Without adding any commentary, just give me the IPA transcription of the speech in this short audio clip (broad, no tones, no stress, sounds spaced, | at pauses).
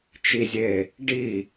t͡ʃ i zʲ e | ɖ i